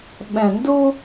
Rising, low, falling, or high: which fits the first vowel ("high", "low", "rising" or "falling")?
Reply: low